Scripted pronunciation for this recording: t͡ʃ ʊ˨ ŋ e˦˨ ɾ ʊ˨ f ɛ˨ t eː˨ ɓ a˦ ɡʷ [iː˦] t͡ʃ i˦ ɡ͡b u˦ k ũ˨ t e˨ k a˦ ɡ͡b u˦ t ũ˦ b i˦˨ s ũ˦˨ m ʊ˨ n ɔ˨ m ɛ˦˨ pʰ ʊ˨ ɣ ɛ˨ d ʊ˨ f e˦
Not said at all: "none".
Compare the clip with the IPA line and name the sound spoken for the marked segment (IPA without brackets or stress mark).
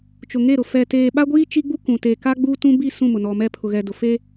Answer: iː˦